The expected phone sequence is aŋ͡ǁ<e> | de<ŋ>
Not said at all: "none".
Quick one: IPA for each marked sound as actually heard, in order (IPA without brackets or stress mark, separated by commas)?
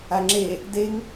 e, ŋ